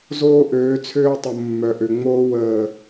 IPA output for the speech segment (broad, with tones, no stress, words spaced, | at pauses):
zoː˦ʔøː˨˦t͡sʰøː˦tˤʊ˨ mːœ˨ʔø˨ŋ͡moː˦ wəː˨